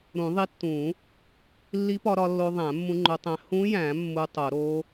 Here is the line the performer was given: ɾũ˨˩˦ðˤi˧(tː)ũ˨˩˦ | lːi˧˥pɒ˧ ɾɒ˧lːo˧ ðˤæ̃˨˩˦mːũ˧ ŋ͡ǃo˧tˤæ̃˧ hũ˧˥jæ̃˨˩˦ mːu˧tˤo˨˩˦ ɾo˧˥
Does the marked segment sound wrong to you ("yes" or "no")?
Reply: no